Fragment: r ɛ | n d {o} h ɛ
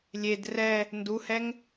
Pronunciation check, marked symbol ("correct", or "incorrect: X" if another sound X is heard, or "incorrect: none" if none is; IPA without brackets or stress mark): incorrect: u